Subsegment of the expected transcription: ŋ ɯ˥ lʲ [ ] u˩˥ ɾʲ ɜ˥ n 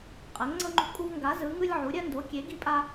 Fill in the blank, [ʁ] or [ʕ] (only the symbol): ʕ